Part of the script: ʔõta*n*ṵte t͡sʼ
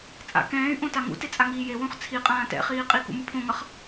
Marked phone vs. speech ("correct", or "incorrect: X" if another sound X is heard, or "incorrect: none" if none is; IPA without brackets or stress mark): incorrect: ŋ